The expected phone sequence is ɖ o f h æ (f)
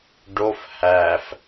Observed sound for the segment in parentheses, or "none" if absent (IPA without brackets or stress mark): f